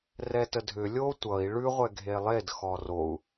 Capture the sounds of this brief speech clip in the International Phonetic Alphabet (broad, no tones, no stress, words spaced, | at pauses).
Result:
rɛtədʱʏ lʲo tʷʌi̯ ɭʉʁʷɛ ɡʱelˠed xɔrou̯